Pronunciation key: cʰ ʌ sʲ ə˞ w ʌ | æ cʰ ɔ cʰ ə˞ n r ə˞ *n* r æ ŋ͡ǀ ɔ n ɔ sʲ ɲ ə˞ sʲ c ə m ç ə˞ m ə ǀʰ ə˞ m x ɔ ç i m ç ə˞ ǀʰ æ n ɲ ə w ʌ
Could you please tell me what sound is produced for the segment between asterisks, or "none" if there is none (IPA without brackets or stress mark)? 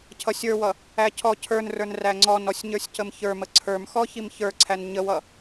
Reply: n